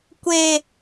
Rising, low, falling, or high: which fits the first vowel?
low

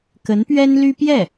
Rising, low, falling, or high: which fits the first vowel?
rising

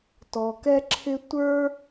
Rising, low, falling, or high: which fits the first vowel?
low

